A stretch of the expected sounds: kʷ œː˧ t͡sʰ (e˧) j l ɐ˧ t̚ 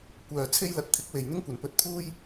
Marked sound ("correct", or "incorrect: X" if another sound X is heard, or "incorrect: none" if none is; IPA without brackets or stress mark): incorrect: e˥